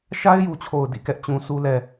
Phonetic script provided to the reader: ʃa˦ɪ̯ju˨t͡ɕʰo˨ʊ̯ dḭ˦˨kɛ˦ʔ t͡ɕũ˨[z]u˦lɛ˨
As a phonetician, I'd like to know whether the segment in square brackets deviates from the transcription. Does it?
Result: yes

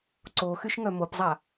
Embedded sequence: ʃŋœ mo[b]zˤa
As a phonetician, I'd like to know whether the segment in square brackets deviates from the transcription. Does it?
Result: yes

